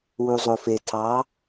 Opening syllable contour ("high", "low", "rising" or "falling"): low